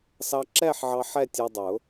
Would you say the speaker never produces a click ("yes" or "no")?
no